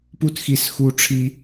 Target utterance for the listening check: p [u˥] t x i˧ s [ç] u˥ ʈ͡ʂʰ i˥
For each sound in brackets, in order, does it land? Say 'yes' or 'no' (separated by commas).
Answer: yes, no